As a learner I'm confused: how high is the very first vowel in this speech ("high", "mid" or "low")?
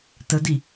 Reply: mid